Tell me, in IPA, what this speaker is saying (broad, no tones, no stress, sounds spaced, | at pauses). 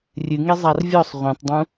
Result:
rʲ ɨ ŋ e zˤ a r vʲ ɔ sˤ ʁʷ ĩ tˤ dˤ ũ